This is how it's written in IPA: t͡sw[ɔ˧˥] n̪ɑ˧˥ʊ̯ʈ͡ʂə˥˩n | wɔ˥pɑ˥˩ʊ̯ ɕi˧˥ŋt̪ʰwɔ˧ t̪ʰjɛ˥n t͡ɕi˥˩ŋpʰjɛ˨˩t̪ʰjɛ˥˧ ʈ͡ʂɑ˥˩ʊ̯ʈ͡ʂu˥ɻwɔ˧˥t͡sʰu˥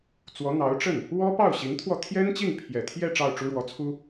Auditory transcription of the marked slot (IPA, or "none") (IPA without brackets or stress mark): ɔ˧˥